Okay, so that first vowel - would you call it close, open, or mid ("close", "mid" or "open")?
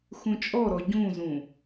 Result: close